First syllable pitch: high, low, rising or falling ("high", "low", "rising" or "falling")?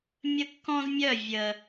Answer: high